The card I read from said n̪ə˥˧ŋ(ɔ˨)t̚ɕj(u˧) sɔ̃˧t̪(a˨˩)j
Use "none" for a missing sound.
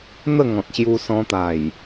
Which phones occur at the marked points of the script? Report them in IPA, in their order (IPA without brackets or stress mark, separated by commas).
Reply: ɔ̃˨, u˧, a˨˩